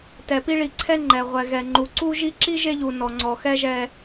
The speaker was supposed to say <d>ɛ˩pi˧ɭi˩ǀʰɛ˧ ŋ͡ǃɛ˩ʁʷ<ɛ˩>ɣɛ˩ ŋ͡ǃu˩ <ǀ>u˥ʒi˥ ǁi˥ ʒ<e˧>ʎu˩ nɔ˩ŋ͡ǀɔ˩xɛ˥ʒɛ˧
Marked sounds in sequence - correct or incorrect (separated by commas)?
incorrect, correct, correct, correct